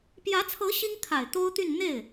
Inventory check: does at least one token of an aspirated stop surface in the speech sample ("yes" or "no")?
yes